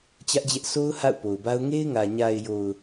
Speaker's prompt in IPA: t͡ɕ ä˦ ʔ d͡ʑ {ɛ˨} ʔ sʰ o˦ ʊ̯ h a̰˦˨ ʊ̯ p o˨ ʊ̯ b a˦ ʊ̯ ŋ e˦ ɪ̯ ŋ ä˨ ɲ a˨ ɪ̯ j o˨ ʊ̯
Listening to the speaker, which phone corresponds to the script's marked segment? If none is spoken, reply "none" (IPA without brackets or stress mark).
ɛ˦